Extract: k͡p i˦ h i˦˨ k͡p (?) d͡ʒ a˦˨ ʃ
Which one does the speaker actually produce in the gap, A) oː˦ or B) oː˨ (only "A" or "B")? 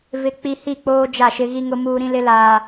A